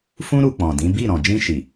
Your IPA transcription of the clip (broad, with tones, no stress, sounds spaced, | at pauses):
f ũ˦ ɾ u˧ k͡p ɔ̃˨ d ĩ˨˦ b i˦˨ ɾ ɔ̃˨ d͡ʒ ĩ˧ ʃ i˨